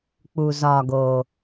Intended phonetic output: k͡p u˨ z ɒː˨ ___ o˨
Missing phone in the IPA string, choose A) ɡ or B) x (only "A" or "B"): A